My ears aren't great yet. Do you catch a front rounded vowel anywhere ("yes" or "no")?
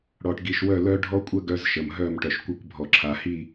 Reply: yes